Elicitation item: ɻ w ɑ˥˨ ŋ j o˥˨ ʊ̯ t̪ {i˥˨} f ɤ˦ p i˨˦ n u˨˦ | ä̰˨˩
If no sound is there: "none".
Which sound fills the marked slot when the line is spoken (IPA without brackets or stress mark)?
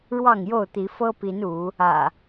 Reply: i˨˦